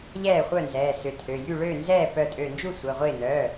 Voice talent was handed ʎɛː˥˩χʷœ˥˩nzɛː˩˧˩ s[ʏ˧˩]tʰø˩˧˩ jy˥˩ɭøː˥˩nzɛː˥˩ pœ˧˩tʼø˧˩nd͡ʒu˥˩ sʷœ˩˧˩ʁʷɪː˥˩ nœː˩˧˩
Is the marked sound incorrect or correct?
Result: correct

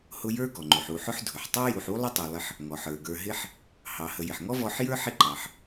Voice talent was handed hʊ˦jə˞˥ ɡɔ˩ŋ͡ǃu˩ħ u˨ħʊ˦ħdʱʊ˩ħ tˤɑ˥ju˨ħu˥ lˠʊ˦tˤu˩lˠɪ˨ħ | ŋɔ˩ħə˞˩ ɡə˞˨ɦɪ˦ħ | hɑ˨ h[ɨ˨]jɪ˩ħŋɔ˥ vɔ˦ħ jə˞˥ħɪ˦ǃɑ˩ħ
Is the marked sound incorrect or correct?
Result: incorrect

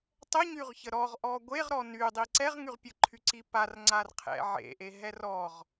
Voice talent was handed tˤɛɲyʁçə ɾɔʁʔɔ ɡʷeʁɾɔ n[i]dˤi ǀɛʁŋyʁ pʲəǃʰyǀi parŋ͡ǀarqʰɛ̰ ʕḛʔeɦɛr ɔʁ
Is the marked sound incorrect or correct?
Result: incorrect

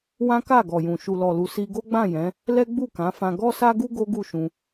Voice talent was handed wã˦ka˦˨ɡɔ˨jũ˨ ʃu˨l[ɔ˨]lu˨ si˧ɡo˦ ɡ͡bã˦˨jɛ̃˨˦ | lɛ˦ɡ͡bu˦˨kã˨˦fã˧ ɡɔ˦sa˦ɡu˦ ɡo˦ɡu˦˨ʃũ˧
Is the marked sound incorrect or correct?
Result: correct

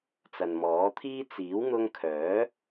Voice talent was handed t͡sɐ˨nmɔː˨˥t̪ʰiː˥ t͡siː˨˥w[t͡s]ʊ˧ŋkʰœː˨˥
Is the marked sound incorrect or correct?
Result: incorrect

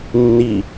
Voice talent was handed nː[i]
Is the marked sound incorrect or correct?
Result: correct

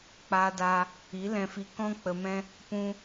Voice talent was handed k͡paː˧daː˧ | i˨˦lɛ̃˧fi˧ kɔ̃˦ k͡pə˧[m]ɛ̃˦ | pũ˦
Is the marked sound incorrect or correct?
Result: correct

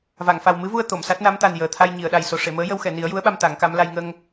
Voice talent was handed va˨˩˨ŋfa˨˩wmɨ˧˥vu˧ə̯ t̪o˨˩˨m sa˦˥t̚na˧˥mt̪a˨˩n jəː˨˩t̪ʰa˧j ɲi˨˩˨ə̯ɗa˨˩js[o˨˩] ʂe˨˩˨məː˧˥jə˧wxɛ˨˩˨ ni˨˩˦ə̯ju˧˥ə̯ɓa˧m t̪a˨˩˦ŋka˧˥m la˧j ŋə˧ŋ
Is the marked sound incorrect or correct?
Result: correct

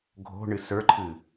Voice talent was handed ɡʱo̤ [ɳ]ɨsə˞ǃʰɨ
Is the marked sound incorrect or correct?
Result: correct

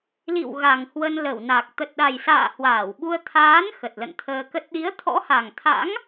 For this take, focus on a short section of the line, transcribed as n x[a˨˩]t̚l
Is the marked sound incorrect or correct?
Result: incorrect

